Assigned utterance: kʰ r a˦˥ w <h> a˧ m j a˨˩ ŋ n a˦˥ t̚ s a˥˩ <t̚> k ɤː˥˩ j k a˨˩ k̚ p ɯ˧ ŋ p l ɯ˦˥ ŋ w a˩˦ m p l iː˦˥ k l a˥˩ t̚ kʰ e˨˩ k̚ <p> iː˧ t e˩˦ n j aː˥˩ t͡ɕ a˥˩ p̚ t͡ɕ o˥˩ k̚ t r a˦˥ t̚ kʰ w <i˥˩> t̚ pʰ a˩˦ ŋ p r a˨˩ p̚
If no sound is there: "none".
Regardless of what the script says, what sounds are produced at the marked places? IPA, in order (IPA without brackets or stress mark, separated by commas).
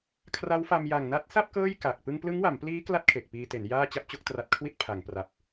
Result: f, p̚, p, i˥˩